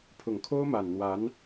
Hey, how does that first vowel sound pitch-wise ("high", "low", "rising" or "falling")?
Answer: low